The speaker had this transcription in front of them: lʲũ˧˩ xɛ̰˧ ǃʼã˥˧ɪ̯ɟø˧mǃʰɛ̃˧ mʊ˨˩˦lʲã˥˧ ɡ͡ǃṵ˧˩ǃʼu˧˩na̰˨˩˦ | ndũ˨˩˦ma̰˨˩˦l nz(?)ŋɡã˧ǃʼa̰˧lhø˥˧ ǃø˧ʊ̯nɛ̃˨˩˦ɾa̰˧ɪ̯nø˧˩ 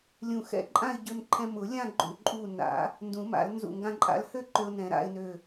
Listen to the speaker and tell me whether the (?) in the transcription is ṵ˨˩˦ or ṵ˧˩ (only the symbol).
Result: ṵ˧˩